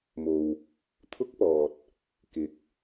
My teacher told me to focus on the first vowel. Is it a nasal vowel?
no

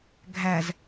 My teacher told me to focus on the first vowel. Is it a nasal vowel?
no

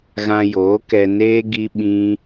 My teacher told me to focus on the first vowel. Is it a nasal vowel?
yes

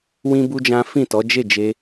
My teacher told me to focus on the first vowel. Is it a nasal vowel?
yes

